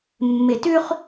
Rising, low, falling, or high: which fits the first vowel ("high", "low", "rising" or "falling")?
low